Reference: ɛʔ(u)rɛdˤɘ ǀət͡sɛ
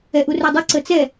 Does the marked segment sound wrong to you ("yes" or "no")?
no